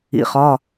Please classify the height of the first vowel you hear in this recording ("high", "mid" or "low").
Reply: high